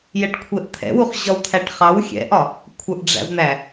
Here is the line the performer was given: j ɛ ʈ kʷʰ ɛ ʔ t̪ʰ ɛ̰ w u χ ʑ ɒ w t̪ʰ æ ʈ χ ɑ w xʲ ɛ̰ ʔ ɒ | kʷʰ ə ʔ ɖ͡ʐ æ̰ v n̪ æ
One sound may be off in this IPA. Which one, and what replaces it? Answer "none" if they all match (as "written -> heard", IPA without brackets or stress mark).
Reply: none